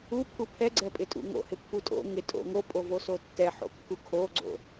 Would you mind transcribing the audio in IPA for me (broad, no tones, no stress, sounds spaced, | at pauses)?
u pʰ u pʰ ɛ ɡ͡ǀ ɛ pʼ ɪ tʼ ṵ ŋ o̰ h ɪ pː u tʼ o̰ ŋ ɪ tʼ o̰ ŋ o pʼ o v o s o tː ɛ ħ o̰ kː u kʰ o ɡ͡ǀ o̰